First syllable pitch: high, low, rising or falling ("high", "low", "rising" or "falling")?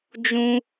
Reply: high